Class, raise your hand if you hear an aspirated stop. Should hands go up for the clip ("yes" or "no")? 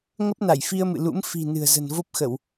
no